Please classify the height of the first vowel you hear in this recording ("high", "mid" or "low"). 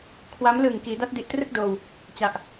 low